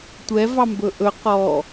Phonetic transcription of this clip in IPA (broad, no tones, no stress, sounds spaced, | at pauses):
tʷ ɛ v ɑ m b ɵ ʔ ɵ q ɔ